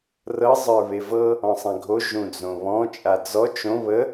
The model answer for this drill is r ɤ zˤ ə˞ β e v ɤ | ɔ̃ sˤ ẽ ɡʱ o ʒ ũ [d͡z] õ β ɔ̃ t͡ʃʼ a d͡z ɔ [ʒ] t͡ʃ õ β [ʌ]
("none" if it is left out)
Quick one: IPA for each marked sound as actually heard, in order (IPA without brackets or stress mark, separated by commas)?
d͡z, none, ə